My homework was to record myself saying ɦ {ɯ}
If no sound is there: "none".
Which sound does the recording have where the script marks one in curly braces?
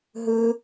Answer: ɯ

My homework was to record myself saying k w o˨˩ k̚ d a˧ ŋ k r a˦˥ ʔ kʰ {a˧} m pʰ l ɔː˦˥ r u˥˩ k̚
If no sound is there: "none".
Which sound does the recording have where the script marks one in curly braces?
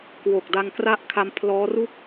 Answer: a˧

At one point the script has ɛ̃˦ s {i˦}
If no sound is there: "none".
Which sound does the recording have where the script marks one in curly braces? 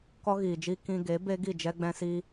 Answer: i˦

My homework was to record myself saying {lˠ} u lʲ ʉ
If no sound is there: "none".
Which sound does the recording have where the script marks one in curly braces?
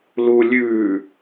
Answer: l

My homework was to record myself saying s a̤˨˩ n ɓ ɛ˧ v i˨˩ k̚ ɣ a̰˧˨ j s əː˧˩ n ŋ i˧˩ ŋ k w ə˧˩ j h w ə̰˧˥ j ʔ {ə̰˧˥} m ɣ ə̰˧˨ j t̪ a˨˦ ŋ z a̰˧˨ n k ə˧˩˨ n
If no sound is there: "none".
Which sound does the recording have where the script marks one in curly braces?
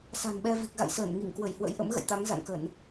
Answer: ə̰˧˥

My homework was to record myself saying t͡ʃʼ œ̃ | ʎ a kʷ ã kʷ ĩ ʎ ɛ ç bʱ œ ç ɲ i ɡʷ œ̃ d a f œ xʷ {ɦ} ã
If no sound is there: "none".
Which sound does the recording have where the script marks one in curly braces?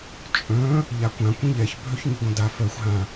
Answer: ɦ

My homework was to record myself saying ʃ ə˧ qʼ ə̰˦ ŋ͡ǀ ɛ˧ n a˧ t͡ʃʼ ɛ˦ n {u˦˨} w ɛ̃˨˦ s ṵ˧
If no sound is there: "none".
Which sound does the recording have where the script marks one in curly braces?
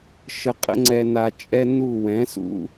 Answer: u˦˨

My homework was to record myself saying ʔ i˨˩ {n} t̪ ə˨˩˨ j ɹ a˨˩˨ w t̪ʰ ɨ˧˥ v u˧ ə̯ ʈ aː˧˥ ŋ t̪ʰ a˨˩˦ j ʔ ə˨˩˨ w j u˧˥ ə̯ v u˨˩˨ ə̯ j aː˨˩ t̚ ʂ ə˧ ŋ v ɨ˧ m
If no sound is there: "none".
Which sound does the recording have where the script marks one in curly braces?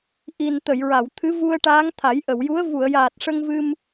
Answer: n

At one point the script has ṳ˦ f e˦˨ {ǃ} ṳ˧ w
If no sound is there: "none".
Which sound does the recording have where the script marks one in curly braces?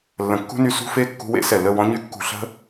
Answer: kː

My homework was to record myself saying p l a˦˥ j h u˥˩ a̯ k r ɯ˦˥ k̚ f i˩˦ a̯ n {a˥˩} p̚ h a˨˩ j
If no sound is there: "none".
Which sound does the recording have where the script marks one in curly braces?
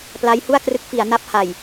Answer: a˦˥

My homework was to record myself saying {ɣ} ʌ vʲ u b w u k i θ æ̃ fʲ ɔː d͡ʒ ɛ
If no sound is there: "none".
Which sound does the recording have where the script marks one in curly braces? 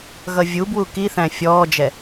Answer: ɣ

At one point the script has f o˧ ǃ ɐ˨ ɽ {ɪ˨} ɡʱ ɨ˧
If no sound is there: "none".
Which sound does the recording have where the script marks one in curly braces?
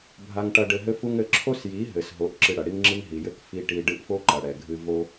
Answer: ɛ˨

